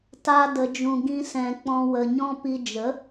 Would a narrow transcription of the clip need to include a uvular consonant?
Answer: no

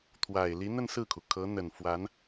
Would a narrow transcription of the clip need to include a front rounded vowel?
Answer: no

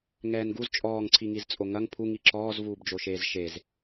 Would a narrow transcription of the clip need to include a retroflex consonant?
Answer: no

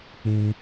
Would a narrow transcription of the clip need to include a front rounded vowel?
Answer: no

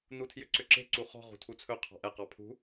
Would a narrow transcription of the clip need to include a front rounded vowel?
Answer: yes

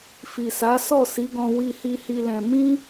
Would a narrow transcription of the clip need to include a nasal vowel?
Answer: yes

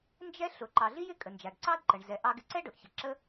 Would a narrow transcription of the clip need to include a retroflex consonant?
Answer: yes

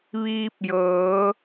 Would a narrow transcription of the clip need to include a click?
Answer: no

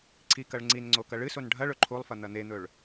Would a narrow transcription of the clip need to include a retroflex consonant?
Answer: yes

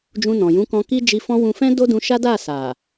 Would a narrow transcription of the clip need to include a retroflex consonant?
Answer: no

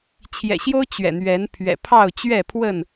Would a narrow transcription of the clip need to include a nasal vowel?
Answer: no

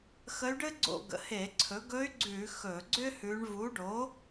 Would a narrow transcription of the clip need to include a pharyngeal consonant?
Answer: no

